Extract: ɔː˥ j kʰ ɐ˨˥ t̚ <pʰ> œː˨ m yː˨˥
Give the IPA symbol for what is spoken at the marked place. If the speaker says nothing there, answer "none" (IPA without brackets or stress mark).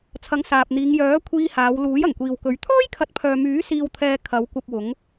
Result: pʰ